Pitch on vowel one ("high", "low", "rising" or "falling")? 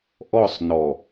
falling